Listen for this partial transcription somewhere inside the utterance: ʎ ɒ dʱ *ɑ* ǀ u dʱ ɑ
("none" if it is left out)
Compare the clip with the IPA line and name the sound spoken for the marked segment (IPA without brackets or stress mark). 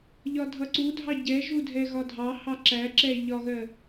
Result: ʌ